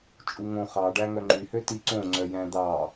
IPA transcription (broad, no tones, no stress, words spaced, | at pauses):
t͡ʃʼuŋõ χɑɖæ ŋœŋ͡ǃyhøti ǀõŋ͡ǀœ jæ̃d̪ɑ